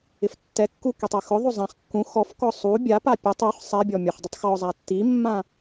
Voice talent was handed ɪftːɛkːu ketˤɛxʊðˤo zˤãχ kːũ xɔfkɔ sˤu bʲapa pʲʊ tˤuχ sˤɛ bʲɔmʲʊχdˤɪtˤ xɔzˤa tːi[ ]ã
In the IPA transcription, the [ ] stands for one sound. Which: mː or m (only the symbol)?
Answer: mː